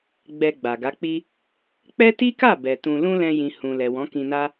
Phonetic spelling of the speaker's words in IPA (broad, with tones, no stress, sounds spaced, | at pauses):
ɡ͡b ɛ˧ ɡ͡b a˨ ɡ a˨˦ k͡p i˦ | k͡p ɛ˦ t i˦ k a˦˨ b ɛ˨ t ũ˧ l ũ˦ l ɛ̃˧ j ĩ˨ h ũ˨ l ɛ˨ w ɔ̃˨˦ k ĩ˧ n a˦